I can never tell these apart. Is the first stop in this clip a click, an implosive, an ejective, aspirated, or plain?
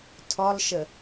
aspirated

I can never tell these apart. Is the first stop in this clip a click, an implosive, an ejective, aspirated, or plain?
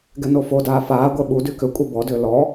plain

